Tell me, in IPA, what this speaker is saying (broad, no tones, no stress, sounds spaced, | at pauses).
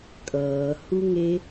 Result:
kʼ ʌː h u ŋ e